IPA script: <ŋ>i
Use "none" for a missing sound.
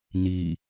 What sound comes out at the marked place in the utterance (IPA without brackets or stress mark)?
n